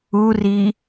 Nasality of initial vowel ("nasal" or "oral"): oral